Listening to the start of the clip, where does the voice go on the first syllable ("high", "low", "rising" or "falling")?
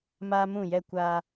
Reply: high